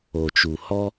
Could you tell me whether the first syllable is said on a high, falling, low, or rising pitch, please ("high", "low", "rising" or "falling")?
low